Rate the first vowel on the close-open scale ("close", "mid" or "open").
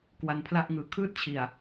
open